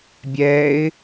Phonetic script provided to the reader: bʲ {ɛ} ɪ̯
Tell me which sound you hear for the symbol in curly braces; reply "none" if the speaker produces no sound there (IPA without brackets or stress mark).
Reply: ɛ